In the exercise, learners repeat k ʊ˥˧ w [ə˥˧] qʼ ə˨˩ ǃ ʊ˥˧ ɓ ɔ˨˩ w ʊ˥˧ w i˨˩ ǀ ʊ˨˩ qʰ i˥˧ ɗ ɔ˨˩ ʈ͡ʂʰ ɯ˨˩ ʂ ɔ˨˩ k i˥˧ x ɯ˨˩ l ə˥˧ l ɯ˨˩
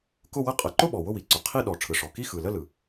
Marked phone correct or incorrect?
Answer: correct